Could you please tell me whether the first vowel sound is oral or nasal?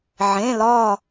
nasal